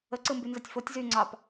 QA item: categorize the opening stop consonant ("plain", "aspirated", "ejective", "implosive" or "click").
click